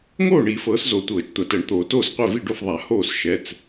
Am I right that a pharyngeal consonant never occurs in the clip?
yes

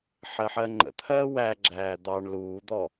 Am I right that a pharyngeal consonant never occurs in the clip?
no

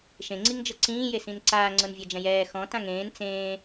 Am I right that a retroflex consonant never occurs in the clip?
yes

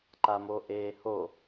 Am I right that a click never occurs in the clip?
no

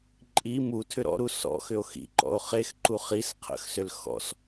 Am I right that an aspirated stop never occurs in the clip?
no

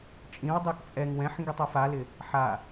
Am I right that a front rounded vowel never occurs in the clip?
yes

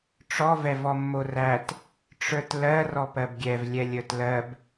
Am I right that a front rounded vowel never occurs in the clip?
yes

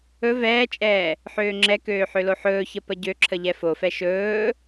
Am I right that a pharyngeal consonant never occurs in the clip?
no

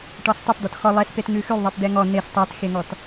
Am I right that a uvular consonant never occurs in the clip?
yes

